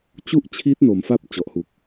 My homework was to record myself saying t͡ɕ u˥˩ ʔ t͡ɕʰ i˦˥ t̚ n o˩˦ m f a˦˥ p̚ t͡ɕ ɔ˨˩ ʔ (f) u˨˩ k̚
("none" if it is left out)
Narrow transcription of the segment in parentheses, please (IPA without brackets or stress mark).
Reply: h